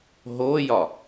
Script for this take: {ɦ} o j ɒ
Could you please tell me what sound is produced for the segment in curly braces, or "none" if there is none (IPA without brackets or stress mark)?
ɦ